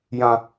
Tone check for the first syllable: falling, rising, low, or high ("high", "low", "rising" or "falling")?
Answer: low